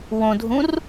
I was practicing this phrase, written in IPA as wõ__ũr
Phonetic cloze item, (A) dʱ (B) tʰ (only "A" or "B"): A